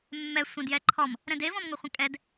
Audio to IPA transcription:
mː ɛ sʷ ɐ̃ d j ɛ ǃʰ ɔ m | ɾ ɛ̃ d e v ɔ̃ m ŋ o χʷ ə̃ kʼ ɛ d

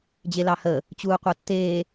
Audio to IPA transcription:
d͡ʑ e l ɑ h ə | t͡ɕ uː qʷ ɑ tː eː

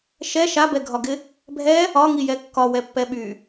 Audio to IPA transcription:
ʃ ɛ ʃ a b ɛ ɡʱ ɒ ɡ ɪ | bʱ ɛ | ɒ ŋ i j ɛ kː ɒ w ɛ pː ɛ ɓ y

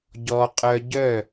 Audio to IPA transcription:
ɟ ɔ˧ qʼ œ˧ ɟ œ˦˨

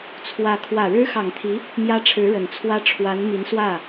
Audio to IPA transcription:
t͡sʰ w ä˧˥ kʰ w ä˨˩ ɻ ɻ̩˥ x ɑ˨˩ ŋ t̪ʰ i˧˥ | m j ä˥ ʈ͡ʂʰ ɻ̩˧˥ ɻ ə˨˩ n t͡sʰ w ä˥ ʈ͡ʂʰ w a˧˥ n m i˧˥ n s w ä˥˩

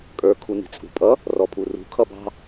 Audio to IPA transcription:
kʼ ə˞ kʰ u n i̤ t͡sʼ ṳ pʼ ʌ | r ɔ pʰ u r ṳ kʰ ʌ b ɑ̤

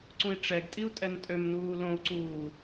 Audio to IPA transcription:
ǀ ũ i̯ ʈ͡ʂ ɛ ɡ tʼ i u̯ tʼ ɛ n tʼ ø m n uː l õ u̯ ǀ uː

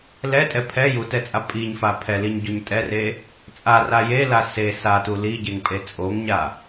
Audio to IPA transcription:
l ɛ tʼ ɛ pʰ ɛ j u t ɛ t͡sʼ a pʼ i ɲ f a pʰ ɛ l i ɲ ɟ o ɲ tʼ ɛ r e | t͡sʼ a r a j e l a s e s a t u l i ɟ e ŋ pʼ e t͡sʼ o ŋ ɲ a

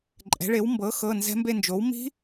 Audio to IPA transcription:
ǃʼ ɛ̤˩˥ ɭ e˩˥ w m b ɤ˩˥ x ɤ˩˧˩ n z ɛ̤˦˥ m b e˥˧ n d͡ʒ o˩˥ w m i̤˦˥

